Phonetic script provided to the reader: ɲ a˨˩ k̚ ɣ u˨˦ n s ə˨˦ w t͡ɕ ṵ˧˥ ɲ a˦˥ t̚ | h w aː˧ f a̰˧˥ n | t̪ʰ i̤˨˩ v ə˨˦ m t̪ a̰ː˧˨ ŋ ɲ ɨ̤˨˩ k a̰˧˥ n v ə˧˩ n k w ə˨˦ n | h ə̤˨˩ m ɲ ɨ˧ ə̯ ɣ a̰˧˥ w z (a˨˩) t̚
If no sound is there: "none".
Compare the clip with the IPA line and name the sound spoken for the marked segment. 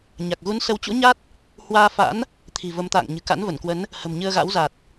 a˨˩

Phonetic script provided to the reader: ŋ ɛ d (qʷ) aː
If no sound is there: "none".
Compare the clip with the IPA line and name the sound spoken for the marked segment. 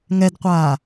qʷ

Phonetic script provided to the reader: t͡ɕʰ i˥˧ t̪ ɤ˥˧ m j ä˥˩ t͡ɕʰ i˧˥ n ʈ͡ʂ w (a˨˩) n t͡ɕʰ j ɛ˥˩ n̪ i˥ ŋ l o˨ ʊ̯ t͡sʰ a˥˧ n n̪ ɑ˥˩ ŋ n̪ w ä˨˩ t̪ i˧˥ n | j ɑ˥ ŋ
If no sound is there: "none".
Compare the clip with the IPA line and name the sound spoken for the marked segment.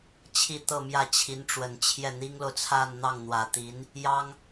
ə˨˩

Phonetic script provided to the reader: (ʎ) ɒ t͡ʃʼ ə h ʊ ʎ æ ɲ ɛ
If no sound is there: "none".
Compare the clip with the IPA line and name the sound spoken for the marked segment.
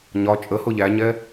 ɲ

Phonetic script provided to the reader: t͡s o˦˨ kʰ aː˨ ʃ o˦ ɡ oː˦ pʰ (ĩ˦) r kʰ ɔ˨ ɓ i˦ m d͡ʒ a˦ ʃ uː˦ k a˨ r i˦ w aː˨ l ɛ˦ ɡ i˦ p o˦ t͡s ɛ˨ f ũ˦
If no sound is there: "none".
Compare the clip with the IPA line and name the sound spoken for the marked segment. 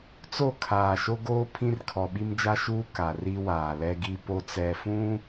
ĩ˦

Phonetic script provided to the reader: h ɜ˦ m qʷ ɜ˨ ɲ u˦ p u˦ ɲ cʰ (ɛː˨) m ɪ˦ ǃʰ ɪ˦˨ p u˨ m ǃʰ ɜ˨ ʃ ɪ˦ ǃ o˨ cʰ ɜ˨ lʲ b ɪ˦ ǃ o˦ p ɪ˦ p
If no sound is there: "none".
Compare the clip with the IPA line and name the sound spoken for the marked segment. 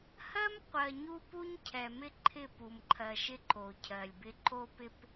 ɛ˨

